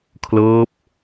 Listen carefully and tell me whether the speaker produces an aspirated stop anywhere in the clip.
yes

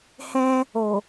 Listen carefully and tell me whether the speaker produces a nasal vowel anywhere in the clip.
yes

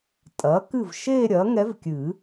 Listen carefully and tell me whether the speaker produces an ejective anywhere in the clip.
yes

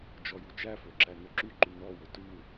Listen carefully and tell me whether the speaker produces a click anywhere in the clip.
yes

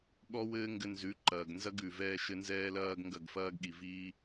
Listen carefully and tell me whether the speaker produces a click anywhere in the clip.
yes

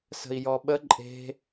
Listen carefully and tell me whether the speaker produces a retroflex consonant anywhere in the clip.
no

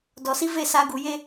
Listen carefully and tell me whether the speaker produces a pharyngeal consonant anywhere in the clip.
no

